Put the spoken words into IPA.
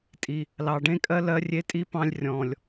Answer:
tʼ i˨ | l ɑ˨ ɖ ẽ˦ kʼ ɜ˦ l ɜ˦ rʲ e˦ tʼ i˦ p ɑ̃˦ lʲ rʲ ɔ̃˨ lʲ

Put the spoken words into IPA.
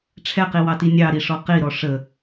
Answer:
ʈ͡ʂʰ ɛ q i w ɑ t i nʲ ɑ ɾ i ʂ ɔ q i ɾ ɔ ʂ ə

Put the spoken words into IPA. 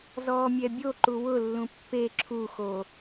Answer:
z ɔː mʲ ɛ bʲ o ǃ u w ʊ lː ũ pː e ǁʰ u x o

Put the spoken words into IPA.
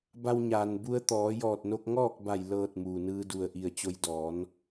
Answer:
b a˧ w ɲ aː˩ n b u˧ ə̯ t̪ ɔː˩˧ j ɔː˧˩ t̚ n o˧ k̚ ŋ ɔː˥˨ k̚ b a˧˩ j l ɤː˧˩ t̚ m uː˩ n ɯː˧ d u˧˩ ə̯ ʔ i˧˩ ə̯ t͡ɕ o˧ j d ɔː˩˧ n

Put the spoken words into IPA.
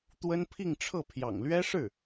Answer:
t̪ w ə˥ n pʰ i˥˧ ŋ ʈ͡ʂʰ ɤ˥˩ pʰ j ɑ̰˨˩ ŋ l ɥ ɛ˥ ʂ ɻ̩˥˩

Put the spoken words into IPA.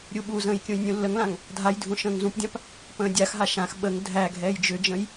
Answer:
ɾʲ u ɓ u z ə̃ː j kʲ ũ j nʲ ũ lː ə ŋ l ã ŋ | dʱ a j dʱ ũ ʃ ə̃ː ŋ z ũ p dʲ ã p | p ə̃ː dʲ a x ɦ a ʃ ã x ɓ ə ŋ dʱ æ ɡʱ ɛː j d͡ʒ ʏ d͡ʒ ə̃ j

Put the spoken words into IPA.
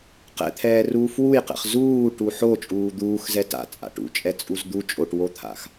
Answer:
q ɛ̰ t̪ʰ ɛː r uː f w u j q ɛ̰ χ z uː ʈ u ħ o t͡ʃʼ uː d̪ uː x z ɛ t a̰ t͡sʼ a̰ ʈ ṵ t͡ʃʼ ɛ t͡sʼ u z d̪ u t͡ʃʼ o ʈ w o t̪ʰ a̰ x

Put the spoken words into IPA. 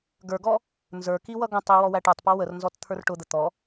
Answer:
ɡ ə˞ ɡ ɔ | n z ə˞ k i w ʌ ɡ ə̃ tˤ i w ɔ w æ ʈ ə˞ tˤ p ɔ w ə r n z ɔ t t̪ʰ ə˞ r ʈ ʊ d̪ ə t̪ ɔ

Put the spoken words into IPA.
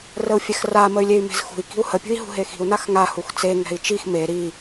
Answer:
r ə u̯ fʲ ɛ x r a m ə y̯ lʲ e y̯ m e̤ z x ṳ i̯ k i̤ u̯ h ə pʲ ṳ i̯ ɦ ṳ ɦ e x i̤ u̯ n a x ŋ a h u x t͡s e ŋ ɛ̤ i̯ t͡ʃ i x m e ɾ i

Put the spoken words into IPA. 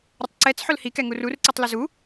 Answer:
ɾʲ ʊ tˤ ǀ ɛ t͡s ħ ʊ l h i k ɛ ŋ u r u r ǀ i tˤ l ʊ z u

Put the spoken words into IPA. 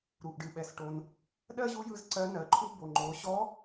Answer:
ɾ u˩ ʔ ɖ ɨ˩ ɓ ɛ˩ s ʈ o˩ n | ɗ ɜ˥ ʑ u˧˥ j ɯ˧ z ǀ ɜ˧˥ n ɜ˩ ǃʰ u˥ b o˩ ŋ͡ǃ o˩˧ ɕ ɔ˧˥

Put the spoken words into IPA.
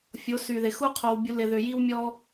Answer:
fʲ o˨˦ s y˨ ð ɪ˨ x u˦ qʰ o˨ w bʲ u˨ l ɪ˨ ð ʏ˨ j i˦ w mʲ ɔ˦

